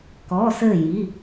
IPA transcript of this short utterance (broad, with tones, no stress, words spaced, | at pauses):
kɔ˩˧˩sɘ˧˩ji˩˧˩